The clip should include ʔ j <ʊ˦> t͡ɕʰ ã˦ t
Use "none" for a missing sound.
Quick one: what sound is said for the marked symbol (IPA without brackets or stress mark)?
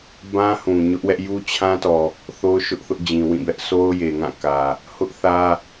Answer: u˦